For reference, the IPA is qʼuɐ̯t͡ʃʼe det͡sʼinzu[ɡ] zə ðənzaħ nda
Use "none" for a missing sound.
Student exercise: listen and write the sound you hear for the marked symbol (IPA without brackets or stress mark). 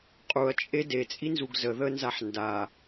ɡ